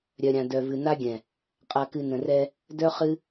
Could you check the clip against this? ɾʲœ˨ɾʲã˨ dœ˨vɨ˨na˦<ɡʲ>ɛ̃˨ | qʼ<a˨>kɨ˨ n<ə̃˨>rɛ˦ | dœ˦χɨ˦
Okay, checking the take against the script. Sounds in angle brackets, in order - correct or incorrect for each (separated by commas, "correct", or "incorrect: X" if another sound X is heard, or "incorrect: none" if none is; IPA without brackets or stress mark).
correct, correct, correct